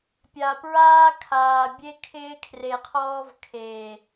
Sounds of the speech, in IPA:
pʲ a˨ p ɹ aː˦ kʰ aː˨ bʲ e˦ kʰ ɪː˦ kʰ r e˨ qʰ ɔː˦ v kʰ eː˨

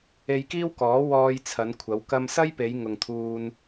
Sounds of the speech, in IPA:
e˧ j k iː˥ w k ɔː˨˥ w ɔː˧ j t͡sʰ ɐ˨˧ n kʷʰ ɐ˨˧ w k ɐ˧ m s ɐ˥ j p e˨˧ j ŋ ʊ˨ ŋ t̪ʰ uː˧ n

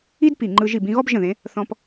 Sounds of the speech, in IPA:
i˥ d p i˧˩ ŋ͡ǃ ɯ˧ ʒ i˧˩ b ĩ˥˧ ɣ ɔ˥ b ʒ ə̃˧˩ ð ẽ˩˧ | θ ɔ̃˧ p

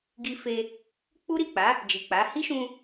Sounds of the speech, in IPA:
ɡ i˧ f e˧ | k͡p u˦ ɾ i˦˨ k͡p a˨˦ | d͡ʒ i˨ k͡p a˨˦ h i˦ ʃ ũ˧

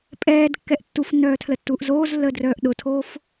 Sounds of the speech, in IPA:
pʼ ɛː d kː ɛ ʔ tː u f nː œː tʰ l ə tː uː ʔ z oː z lː əː d r œː ʔ ɗ ʊ tʰ oː f

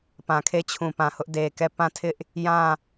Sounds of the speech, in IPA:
p ã˨ kʰ e˦˨ t͡ɕʰ ũ˨ p ã˨ h ʊ˦ ʔ d e˨ k ɛ˦˨ p ã˦˨ tʰ ɪ˦ ʔ | j ã˦˨

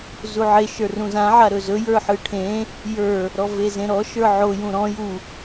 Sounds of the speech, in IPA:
z u ʕ e ʃ ə˞ r ũ z ã ʕ a ɾ ɵ z ɵ j ə˞ ħ ɯ ʈʰ ẽ | j ə˞ | ɾ ɔ v e z ẽ ɾ ɔ ʃ ə˞ ʕ o j ũ ɾ ɔ̃ j u

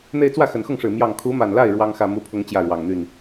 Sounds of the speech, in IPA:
n̪ e˥˧ ɪ̯ t͡s w ä˥˩ x ə˨˩ n x ʊ˥˩ ŋ ʂ ɻ̩˨˩ m j ɑ˥˩ ŋ kʰ u˧˥ m a˨˩ n l a˥˩ ɪ̯ ɻ w ɑ˥ ŋ x ä˥˧ m u˥˩ pʰ ʊ˥ ŋ t͡ɕ j ä˥˩ ɻ w ɑ˨˩ ŋ n̪ y˥˩ n

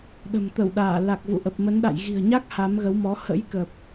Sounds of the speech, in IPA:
ɗ ə̤˨˩ m t̪ ə˧˩ w ɗ aː˧˩ l a˨˩ k̚ v ṵ˧˨ ʔ ə˨˩ p̚ m ə˨˦ n ɗ a̰˧˨ j ɣ i̤˨˩ ə̯ ɲ a˦˥ k̚ h a˨˦ m ɣ ə˨˦ w m ɔ˨˦ h ə̰˧˥ j k ə˨˩ p̚

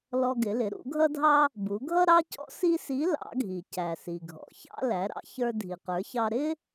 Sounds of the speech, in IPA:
l ɔ˧ ɡ ɪ˩˧ l ɪ˩˧ ɾ ṵ˩˧ ɡʱ ʌ˥ dʱ ɑ˥ | b u˩˧ ɡʱ ʌ˥ ɾ ɑ˥ c ɔ̰˥ s i˥ s i˧˥ l ɑ̰˩˧ ɡʱ i˩ c æ˩ s i˩ ɡʱ ɔ̰˩ ç ɑ̰˥ l æ˩˧ ɾ ɑ̰˧ ç ə˞˧ dʱ i˩ q ə˞˩˧ ç ɑ˧ ɾ ɪ˥

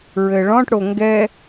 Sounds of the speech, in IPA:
ɹ ɘ ɭ ɔ̃ ʈ ɽ o ŋ ɡ ɛ

